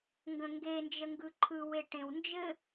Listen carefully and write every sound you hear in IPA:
ŋɡə̃ŋɡe nd͡ʒəŋɡɯǃʰɯ weʈẽwnd͡ʒɘ

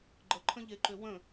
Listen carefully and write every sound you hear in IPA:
ɡ͡ǃəǃʰə̃ʎeǃø wə̃

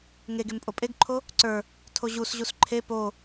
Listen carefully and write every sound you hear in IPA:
ŋeɡem pʼopʼeɡǃʰo | ǀə˞ | tʰoʑusʑus ǃʰe po

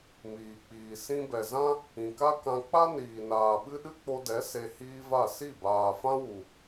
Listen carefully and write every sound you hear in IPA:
miː˨k͡piː˨ sĩ˧bɛ˨ zã˦ | ĩ˨ka˦kã˧ k͡pa˦niː˨ naː˨ɓɨ˦ ɗɨ˦k͡po˧dɛ˨˦ se˧hiː˦va˦˨ si˦˨baː˨fã˦wu˨

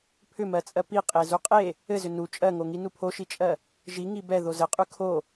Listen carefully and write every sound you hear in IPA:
pʰʏmɜt͡sʼɜ pi qʼezuqʼe | ɘzʏ nu t͡ʃʼɜŋoŋi nupʰoʃit͡ʃʼɜ | ʒi ŋibɛ ðozɘqʼʉ kʰo

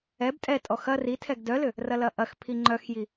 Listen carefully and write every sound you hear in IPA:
ɛb tʼɛtʼɔ xɐ ritʰɛɡ dœlʏ | rɐlɐʔɐx pʰiŋ͡ǃœxji

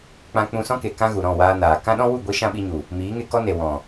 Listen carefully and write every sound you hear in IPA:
k͡pã˧k͡pũ˧sɔ̃˦ke˨ kã˦ɣu˨ ɾɔ̃˦˨waː˧naː˨ kã˦ ɗɔ̃˦wu˦˨ɡʷi˧ ʃã˦ɓi˧ɲu˨ | miː˨˦ŋe˧kɔ˦ne˨ wɔ̃˨

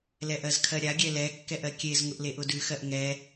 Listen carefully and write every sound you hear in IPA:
lɛʔɜzkʰɜɾʲa ɡʲɛlɛ kːɛʔɜkʲez ŋʊʔleʔʊdʉ xɜʔŋɛ

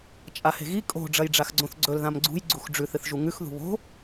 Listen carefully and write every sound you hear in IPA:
t͡ʃʼahe̤ɣi kʼo̤ ɖ͡ʐɐjɖ͡ʐaxɡ͡ǀõθɡ͡ǀɵl ðãmɡ͡ǀṳj ɡ͡ǀuxɖ͡ʐʉθ ɨθʒuŋʉx ðṳβo̤

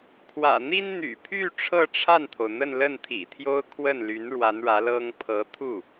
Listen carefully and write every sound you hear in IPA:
kʰwä̰˨˩n̪i˥n n̪y̰˨˩pʰy˥˧ ʈ͡ʂʰɤ˥˧ʈ͡ʂʰa˥˩nt̪ʰo˩ʊ̯ n̪ə˥˧nlə˥˩nt̪ʰḭ˨˩t̪ʰjo˥ʊ̯ kʰwə˥˩nly˧˥n ɻwa˧˥nɻä˧˥lɤ˥ŋ pʰɤ˧˥t̪ʰu˥˩

